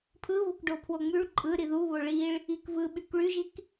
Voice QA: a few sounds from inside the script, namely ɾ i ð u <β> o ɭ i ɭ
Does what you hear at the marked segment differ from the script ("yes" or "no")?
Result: no